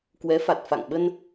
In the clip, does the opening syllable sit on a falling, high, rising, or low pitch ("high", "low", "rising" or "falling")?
rising